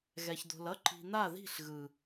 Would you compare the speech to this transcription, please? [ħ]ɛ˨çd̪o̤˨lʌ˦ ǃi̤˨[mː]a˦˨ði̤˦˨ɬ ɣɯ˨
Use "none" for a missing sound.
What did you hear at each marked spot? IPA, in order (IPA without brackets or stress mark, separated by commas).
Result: ɣ, n̪